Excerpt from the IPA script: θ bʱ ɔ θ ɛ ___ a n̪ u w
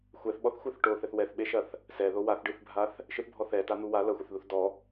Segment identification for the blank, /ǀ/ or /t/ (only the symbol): t